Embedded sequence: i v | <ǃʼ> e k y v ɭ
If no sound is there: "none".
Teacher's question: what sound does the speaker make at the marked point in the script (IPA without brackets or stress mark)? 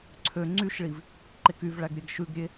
ǃ